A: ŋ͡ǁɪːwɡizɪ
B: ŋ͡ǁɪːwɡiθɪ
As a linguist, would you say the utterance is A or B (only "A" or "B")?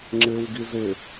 A